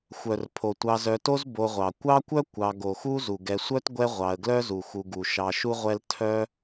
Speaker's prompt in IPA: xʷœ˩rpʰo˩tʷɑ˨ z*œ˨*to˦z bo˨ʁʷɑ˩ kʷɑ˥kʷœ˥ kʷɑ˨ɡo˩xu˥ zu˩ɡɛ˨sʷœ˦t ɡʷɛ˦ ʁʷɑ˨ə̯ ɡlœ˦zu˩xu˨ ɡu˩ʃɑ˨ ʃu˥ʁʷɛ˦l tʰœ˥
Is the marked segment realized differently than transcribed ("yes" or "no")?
no